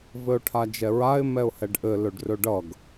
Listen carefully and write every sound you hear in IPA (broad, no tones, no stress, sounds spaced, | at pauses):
v ɘ ʊ̯ ʈʰ a d͡ʒ ɛ ɹ a ɪ̯ m ɛ ʊ̯ h ɛ ɖ ʔ ɘ l ɵ ɖ r ɵ ɖ ʌ ɡ